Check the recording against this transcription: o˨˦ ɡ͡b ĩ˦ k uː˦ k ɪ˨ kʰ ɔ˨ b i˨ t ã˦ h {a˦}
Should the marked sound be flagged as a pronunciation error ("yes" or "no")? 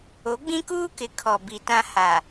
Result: yes